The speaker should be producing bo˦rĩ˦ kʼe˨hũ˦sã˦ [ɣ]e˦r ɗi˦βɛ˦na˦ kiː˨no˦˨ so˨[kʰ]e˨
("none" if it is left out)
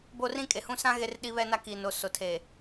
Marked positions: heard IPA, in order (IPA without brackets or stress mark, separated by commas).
ɣ, tʰ